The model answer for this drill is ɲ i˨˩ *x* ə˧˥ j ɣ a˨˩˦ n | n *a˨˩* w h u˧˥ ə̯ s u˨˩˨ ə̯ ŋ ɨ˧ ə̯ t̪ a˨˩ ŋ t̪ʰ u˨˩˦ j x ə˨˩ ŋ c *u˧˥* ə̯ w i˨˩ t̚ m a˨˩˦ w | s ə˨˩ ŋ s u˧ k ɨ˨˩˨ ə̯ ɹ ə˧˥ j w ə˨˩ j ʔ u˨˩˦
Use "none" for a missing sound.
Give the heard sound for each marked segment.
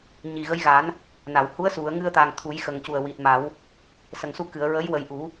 ɣ, a˨˩˨, u˨˩

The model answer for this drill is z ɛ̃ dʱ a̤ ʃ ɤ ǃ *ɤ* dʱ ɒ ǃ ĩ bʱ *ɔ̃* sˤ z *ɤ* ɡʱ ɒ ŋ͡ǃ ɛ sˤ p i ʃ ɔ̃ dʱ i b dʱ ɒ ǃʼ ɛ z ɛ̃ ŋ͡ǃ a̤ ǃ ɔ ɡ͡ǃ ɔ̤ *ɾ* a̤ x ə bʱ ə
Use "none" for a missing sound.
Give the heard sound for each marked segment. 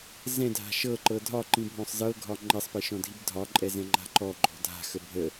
ɤ, ɔ̃, ɤ, dʱ

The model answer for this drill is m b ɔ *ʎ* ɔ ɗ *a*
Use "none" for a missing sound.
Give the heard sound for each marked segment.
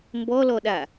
l, a

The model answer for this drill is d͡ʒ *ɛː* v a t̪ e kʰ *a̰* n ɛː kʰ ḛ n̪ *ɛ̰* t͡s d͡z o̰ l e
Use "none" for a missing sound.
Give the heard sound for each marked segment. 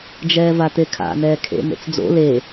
ɛː, a̰, ḛ

